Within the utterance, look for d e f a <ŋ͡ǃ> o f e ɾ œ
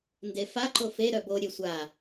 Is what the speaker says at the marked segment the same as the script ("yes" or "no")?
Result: no